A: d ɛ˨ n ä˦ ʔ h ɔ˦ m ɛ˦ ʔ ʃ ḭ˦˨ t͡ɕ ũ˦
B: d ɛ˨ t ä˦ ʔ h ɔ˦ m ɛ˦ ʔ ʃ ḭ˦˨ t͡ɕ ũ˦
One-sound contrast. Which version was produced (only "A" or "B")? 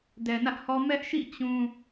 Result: A